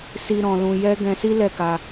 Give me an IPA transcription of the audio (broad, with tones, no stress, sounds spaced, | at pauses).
s i˧ ɾ ɔ̃˧ l ũ˧ j ɛ˦ ɡ ɛ̃˧ s i˦ l ɛ˦˨ k a˧